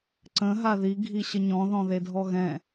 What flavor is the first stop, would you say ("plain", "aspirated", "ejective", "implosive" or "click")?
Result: click